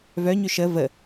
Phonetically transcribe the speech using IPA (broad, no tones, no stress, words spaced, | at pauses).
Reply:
vœ ɲʏʃə və